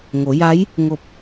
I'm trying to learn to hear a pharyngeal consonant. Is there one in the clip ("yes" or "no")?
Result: no